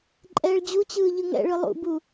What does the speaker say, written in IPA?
ǃʼɛːɭd͡ʑut͡ɕɯː ʎɯŋɛ̰ɭɯ lˠṵbu

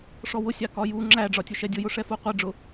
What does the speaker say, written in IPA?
ʂɔwʊsʲɑ kɒju ŋ͡ǁæɖ͡ʐɒtʲʊʃɛ dʲʊjʊʂɛ fuqʷɛɖ͡ʐʊ

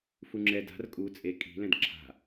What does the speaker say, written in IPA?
fuŋ͡ǁɛda̤r kʼu t͡sʼe kʼi̤ lɛ̃dǁʰa̤

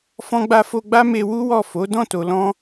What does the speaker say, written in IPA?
fɔ̃˧ɡ͡ba˧fo˧ɡ͡ba˦ me˧wu˦wɔ˦˨ fo˨˦ dɔ̃˦˨to˨lɔ̃˧

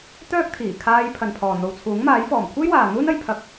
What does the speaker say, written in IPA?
t̪œː˥k̚t̪ʰiː˨˩kʰaː˧j pʰɐ˨npʰɔː˨n̪o˨w t͡sʰuː˨˥ŋmaː˨˥jfɔː˨˩m kʷʰe˥jwaː˨ n̪uː˥nɐ˨˧j pʰɐ˧k̚

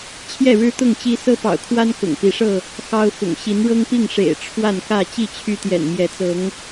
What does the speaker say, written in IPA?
t͡ɕʰjɛ˥˨ɻɻ̩˦ t̪ʊ˥˨ŋt͡ɕi˦ sɤ˦pɑ̰˨˩ʊ̯kʰwa˦n kʊ̰˨˩ŋpi˨˦ʂɤ˥˨ | xɑ˦ʊ̯fʊ̰˨˩ŋ ɕi˨˦n ɻɤ˦ŋpi˥˨ŋ ʂḛ˨˩ɪ̯ ʈ͡ʂʰwa˥˨nkä˥˨ t͡ɕi˥˨t͡ɕʰy˦t̪jɛ̰˨˩n mjɛ˨˦t͡sɤ˨˦ŋ

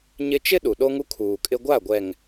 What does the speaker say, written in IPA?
ɲɪ˦ t͡ʃɪ˦ ɗu˨ɗo˦ŋu˦ kʰuː˨kʼɪ˦ ɡʷa˦˨ɡʷɛ˨ŋ

